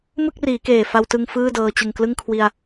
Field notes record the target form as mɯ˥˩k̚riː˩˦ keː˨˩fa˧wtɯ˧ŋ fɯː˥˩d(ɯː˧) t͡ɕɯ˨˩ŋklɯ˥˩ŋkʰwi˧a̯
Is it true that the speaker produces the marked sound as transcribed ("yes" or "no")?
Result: no